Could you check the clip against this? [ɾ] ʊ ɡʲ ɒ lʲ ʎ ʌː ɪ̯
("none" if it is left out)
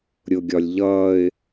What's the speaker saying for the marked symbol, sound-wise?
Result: ɾʲ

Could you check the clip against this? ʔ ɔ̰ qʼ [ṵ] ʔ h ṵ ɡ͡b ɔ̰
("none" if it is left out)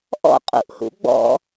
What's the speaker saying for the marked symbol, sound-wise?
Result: ṵ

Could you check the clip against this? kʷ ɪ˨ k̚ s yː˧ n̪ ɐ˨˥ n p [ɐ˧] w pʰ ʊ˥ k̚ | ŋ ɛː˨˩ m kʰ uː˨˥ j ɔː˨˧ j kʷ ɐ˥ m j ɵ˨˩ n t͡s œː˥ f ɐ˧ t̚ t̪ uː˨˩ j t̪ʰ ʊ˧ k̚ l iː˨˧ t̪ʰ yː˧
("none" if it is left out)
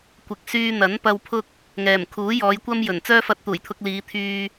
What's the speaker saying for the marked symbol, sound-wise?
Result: ɐ˧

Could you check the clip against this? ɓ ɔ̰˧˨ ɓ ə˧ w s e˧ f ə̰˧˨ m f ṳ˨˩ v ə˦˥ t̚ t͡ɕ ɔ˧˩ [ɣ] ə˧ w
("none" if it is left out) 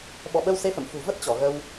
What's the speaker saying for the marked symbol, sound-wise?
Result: ɣ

